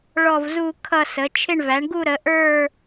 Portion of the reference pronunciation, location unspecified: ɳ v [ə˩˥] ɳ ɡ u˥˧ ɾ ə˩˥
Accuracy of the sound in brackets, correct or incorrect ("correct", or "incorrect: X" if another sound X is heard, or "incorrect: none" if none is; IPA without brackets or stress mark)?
incorrect: æ˩˥